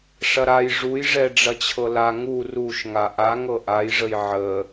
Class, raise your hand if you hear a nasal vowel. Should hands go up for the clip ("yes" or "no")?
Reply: no